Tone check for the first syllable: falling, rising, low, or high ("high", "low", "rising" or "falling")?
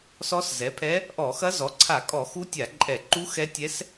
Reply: rising